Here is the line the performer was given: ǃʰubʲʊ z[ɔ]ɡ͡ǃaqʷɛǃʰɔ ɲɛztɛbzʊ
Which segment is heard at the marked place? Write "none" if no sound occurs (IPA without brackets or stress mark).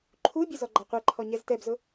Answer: ɔ